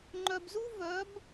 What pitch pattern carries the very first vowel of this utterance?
low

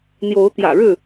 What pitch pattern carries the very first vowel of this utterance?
rising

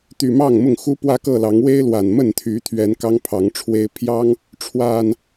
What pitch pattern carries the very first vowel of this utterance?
low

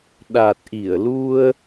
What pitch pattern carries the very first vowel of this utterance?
low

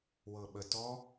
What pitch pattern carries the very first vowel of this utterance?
low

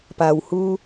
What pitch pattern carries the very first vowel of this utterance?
low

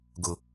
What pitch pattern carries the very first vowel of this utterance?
low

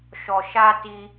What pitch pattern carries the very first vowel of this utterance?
low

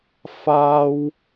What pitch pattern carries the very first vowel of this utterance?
high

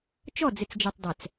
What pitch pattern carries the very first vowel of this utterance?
falling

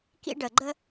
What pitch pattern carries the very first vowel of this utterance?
high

